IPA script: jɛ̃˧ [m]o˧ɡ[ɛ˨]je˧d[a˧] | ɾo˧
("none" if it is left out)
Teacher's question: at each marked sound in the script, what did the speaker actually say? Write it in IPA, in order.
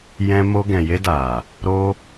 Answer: m, ɛ̃˨, a˨

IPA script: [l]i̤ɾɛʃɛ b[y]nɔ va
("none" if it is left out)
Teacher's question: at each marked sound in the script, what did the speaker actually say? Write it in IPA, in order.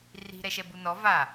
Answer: r, u

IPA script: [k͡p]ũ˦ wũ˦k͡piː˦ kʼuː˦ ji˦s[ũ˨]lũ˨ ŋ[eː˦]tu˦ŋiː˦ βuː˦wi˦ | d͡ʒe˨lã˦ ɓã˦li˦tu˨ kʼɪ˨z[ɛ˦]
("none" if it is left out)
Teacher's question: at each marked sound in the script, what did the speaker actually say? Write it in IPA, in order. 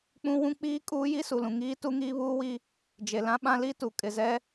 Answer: k͡p, u˨, iː˦, ɛ˦

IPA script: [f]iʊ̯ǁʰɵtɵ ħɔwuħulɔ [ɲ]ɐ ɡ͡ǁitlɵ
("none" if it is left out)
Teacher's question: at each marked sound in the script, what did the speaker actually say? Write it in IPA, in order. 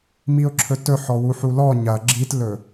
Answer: m, ɲ

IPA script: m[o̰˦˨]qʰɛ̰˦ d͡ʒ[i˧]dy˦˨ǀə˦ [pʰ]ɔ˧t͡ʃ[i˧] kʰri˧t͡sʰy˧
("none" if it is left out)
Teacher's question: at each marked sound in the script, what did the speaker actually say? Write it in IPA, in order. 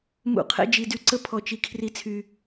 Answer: ṵ˦˨, i˧, pʰ, i˧

